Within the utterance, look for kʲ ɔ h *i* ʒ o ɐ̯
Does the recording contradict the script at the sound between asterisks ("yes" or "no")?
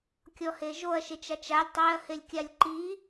yes